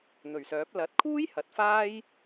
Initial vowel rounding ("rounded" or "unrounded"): rounded